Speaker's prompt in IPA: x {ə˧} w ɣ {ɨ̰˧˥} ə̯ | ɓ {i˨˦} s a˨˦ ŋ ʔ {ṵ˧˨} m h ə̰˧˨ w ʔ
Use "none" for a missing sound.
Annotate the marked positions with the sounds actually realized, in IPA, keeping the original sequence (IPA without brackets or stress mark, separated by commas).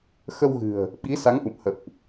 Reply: ə˧, ɨ̤˨˩, i˨˦, ṵ˧˨